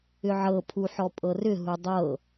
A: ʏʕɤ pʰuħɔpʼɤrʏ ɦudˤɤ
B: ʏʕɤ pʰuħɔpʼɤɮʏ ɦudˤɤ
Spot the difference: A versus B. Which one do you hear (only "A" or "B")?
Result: A